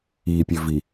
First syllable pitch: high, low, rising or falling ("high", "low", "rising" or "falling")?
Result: low